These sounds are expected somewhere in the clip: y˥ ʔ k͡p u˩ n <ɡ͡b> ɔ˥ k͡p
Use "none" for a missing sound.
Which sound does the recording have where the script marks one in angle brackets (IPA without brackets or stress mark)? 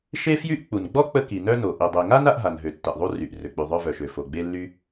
ɡ͡b